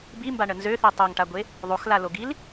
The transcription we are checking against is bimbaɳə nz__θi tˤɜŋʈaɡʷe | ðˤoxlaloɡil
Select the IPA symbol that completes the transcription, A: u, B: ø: B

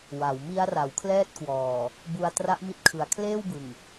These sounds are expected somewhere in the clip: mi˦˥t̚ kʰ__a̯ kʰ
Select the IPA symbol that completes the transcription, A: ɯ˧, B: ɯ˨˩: B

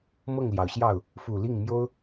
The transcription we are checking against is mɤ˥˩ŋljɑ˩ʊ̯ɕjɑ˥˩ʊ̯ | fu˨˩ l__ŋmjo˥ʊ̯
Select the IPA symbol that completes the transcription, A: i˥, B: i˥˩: B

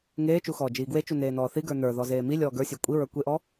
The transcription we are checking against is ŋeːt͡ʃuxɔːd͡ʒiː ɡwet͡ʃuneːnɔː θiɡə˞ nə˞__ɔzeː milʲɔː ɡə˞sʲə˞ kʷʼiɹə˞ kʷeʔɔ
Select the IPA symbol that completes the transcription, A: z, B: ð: B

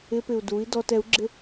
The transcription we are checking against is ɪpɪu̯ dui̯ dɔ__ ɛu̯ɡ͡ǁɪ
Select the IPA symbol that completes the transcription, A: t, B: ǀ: A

